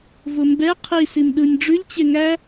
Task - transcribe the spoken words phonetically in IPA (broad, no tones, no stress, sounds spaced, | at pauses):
v ʊ m b ɛ qʰ i s i m ɗ ɯ nʲ ɖ͡ʐ ʉ lʲ t͡ɕ e ŋ æ